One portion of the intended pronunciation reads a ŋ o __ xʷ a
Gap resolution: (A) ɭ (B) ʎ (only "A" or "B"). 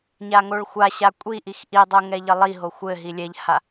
A